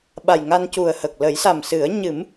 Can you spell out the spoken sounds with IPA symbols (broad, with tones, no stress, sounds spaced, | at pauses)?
ɓ a˨˩ j ŋ a˧ n c u˨˩ ə̯ h ə˨˩ k̚ l ə˨˩˦ j s a˨˩ m s ɨ˨˩˦ ə̯ ɲ ɨ˨˩˦ m